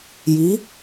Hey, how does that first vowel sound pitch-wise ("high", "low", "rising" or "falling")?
rising